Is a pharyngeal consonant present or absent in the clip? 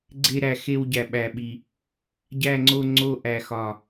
absent